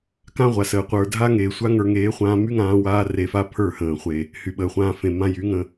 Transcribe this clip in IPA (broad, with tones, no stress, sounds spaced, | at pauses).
k ã˦ ʁʷ a˨ s əː˨ qʷ ə˞˨ dʱ a˦ ŋ eː˨ sʷ a˦ ŋ ə˞˧ ŋ eː˨˦ χʷ ãː˧ m y˦ ŋ ãː˧ w aː˦ r e˧ f a˦ pʰ ə˞˦˨ h ə̃ː˨ χʷ e˨ | h y˨ ɓ əː˨ χʷ ãː˧ f ẽ˨ m ã˧ j y˨˦ ŋ ə̃˧